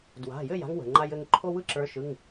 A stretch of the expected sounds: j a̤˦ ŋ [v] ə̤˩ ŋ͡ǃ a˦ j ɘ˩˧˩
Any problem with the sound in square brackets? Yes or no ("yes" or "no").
yes